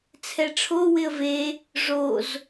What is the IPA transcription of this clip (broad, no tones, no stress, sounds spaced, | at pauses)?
t͡sʰ ɛ ʈ͡ʂʰ o w ɪ ə̯ v e | ʐ o z